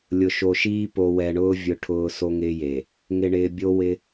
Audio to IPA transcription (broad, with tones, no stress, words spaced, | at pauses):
lʲʊ˨ʃo˨ʃiː˦ po˨wɛ˨ɳʊː˦ vʲʊ˦ʈʰʊː˦ so˦ŋɪː˦je˨ | ŋɪ˨ɳɪː˨ bʲo˦wɪ˦